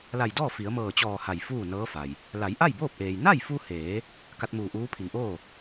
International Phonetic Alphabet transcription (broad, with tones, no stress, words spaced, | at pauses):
la˧˩jdɔː˥˨ fi˩˧ə̯mɤː˧˩t͡ɕɔː˧˩ ha˧˩jfuː˥˨nɤː˧˥fa˩j | la˩˧jʔa˥˨jboː˥˨p̚ʔeː˩j na˥˨jfu˧heː˩˧ | ka˧t̚muː˧˩ʔuː˧˥pʰi˩˧ŋ ʔoː˥˨